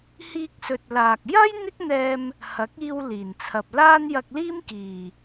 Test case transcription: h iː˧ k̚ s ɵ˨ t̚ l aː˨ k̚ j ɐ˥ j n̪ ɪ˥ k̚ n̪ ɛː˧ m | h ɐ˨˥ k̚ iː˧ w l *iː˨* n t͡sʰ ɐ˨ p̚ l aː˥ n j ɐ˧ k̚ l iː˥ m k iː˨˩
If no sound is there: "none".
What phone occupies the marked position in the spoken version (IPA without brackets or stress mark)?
iː˨˩